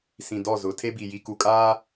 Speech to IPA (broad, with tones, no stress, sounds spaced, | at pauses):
s ĩ˨ d ɔ˦˨ z ʊ˨˦ tʰ e˦ b i˨ j i˨ k u˨ kʼ aː˦